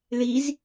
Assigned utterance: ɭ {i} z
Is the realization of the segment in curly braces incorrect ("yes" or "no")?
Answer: no